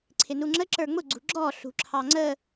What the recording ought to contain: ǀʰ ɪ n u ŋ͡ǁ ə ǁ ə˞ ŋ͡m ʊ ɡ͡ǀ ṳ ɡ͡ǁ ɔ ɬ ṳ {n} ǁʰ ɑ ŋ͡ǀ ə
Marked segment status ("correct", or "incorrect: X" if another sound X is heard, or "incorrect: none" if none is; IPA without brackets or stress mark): incorrect: none